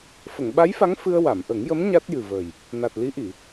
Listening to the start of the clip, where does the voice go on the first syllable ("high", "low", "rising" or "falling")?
low